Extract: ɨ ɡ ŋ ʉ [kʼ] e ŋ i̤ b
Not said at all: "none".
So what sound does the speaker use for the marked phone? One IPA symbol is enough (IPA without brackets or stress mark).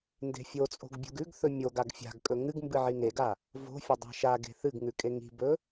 kʼ